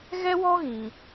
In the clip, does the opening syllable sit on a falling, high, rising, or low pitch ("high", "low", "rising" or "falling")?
high